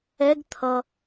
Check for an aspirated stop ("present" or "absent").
present